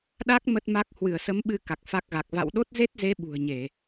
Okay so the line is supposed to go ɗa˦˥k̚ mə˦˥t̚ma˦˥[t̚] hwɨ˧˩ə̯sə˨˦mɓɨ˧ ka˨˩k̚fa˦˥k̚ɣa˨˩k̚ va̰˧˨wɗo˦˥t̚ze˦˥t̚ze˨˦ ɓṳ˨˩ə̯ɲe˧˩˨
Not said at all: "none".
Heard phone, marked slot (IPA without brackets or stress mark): k̚